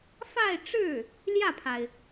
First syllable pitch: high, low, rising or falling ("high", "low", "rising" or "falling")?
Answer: falling